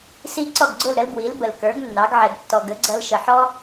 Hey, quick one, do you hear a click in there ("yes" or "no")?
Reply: yes